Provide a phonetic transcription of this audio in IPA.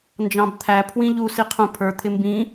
n d͡ʒ ɑ̃ b t̪ʰ æ pʰ w ĩ ʎ u s i qʰ ũ pʰ ə˞ t̪ʰ ɪ m b ĩ

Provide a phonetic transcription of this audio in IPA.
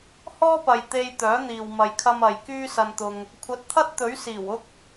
h ɔː˥ p ɐ˨ j t̪ e˧ j t̪ œː˨˥ n̪ iː˨ w m ɐ˨ j kʰ ɐ˧ m ɐ˨ j k yː˥ s ɐ˧ n t̪ ʊ˧ ŋ | kʷʰ ɐ˨˥ t̚ t̪ʰ ɐ˥ t̚ t̪ ɵ˨˥ ɥ s iː˨˩ w ʊ˥ k̚

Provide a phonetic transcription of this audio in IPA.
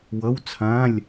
w ʌ˧˥˧ w t͡sʰ ã˧˥˧ lʲ

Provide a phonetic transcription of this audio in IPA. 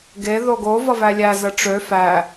ɡ e ð o ɡ o v ʌ v æ lʲ æ z ə ʈ͡ʂ ø f æ

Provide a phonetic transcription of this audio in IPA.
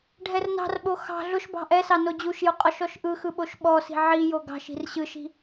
ɖʱ ɛ r n ɑ̤ r ɓ o x ɑ̤ ɮ ʊ ʃ b ɑ̤ ʔ ɛ s ɑ n o d͡ʑ u ʃ j ʊ qʼ ɔ ʃ ɔ ʃ ʔ ɯ x ɯ ɓ o ʃ ɓ ɔ s i̤ ʕ i j o ɡ ɑ̤ ʃ i̤ r ɕ ɯ ʃ i̤

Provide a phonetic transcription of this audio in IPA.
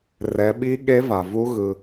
r ɛ˩˧ ɓ i˧˥ ɠ e˧˥ v a˩ v u˧˥ ɣ ɯ˩

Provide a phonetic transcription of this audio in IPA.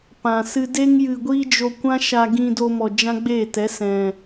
p ã˨ s ɨ˦ d e˦ ŋ j ɨ˧ ɡʷ iː˦ d͡ʒ o˧ kʷ ã˦ ʃ a˧ ɡ ĩ˧ d o˧ m ɔ˨ d͡ʒ ã˦ ɡ͡b eː˦˨ t ɛ˨˦ s ɛ̃˨

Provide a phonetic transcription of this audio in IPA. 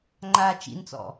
ŋ͡ǃ a t͡ʃ ḭ n t͡s ɔ̰

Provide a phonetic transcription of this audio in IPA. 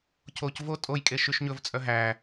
cʰ o c v o tʼ o j kʼ e ʃ y ʃ ɲ ɵ v t͡sʼ œ ɦ æ

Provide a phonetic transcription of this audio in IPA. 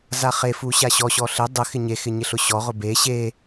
z a χ e f u ɕ a ɕ ɔ ɕ ɔ ɬ ɪ dˤ ɪ x ɪ ɲ e x ɪ ɲ ɪ ɬ ʊ ɕ ɔ ʁ ʊ b e ɕ e

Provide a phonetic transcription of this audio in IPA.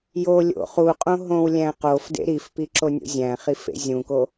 j o lʲ o̰ χ u qʼ õ ɦ õ w lʲ æ̃ q o f d ḛ ɾ i f p i ǁ o nʲ o̰ zʲ æ̃ χ i f ḛ zʲ ũ k o

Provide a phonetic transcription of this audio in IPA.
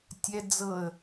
tʲ ɛ d͡z ɤ ə̯

